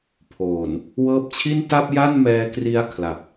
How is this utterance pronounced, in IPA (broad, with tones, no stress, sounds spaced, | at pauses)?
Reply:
pʰ oː˨˩ n | w ɤː˦˥ p̚ t͡ɕʰ i˥˩ n t a˥˩ p̚ j a˥˩ n m ɛː˧ k r i˦˥ a̯ kʰ l a˨˩ p̚